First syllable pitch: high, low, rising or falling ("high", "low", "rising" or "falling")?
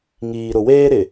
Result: low